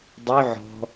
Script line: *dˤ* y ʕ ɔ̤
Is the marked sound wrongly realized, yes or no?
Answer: no